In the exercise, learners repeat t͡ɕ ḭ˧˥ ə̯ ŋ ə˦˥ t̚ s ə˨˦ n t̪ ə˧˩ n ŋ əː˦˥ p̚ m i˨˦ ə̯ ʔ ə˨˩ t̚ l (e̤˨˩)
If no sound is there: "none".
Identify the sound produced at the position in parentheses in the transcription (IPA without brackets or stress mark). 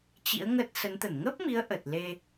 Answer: e˧